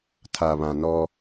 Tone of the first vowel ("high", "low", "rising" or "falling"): low